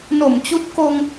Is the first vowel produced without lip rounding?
no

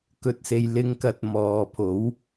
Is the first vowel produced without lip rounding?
no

